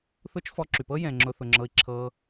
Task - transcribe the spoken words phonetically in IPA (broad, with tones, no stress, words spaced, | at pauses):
θʊː˦t͡ʃ fɔ˧ǁy˨pɤ˦ jɛ̃˨ŋ͡ǁʊ˧ θʊ˨ŋ͡ǁɤ˧i̯ǁʰɤː˧